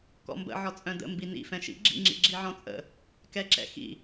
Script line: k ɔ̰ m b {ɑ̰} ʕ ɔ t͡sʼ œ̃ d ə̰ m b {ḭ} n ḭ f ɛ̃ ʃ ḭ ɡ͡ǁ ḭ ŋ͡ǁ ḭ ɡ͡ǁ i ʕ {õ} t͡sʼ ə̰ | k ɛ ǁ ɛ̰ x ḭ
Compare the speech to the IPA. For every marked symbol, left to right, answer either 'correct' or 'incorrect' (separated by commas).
incorrect, incorrect, incorrect